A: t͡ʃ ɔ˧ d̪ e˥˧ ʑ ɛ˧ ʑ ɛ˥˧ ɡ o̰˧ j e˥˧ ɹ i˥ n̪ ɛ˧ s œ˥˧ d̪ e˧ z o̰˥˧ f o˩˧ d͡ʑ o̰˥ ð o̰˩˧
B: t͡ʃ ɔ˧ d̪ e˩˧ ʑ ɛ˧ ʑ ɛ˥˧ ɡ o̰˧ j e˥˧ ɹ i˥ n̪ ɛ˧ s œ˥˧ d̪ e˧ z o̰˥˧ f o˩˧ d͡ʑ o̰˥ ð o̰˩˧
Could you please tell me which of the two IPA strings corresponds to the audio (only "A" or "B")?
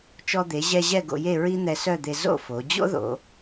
B